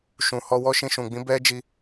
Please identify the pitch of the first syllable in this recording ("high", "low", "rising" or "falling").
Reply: low